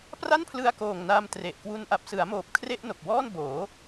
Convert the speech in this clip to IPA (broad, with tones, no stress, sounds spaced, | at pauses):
p r a˥˩ n pʰ l ɯ˧ a̯ k oː˨˩ ŋ n a˧ m t r e˨˩ ʔ k w u˧ n ʔ a˨˩ p̚ s ɯ˩˦ a̯ m oː˨˩ p̚ kʰ r e˥˩ ʔ n o˨˩ k̚ w ɔː˥˩ n b oː˩˦